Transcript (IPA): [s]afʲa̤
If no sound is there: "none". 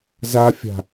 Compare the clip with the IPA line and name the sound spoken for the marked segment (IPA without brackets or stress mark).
z